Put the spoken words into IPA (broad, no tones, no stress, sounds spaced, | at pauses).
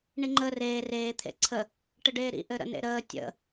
ɳ i ŋ͡ǃ ə r eː r eː t̪ʰ ḛ ǀʰ ə | ʈ ɘ ɖ eː ɾ ḭ ʔ ɘ ɾ ə̰ n ḛ ɾ əː tʲ ə̰